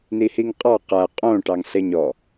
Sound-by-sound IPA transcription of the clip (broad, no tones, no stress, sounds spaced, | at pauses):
n i h i ŋ qʼ ɑ q æ qʼ õ ʈ ɑ ŋ ɬ e ɲ ɔ